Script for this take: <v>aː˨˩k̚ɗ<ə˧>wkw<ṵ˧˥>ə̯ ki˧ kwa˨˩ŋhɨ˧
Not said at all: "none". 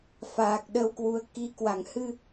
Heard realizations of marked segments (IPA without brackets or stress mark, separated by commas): f, ə˧, u˨˦